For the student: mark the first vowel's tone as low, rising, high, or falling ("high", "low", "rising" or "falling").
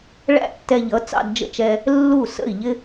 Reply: high